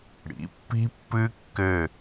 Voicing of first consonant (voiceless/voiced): voiced